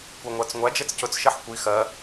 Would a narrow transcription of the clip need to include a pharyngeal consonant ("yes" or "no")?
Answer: yes